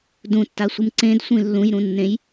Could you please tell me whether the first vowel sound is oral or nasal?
nasal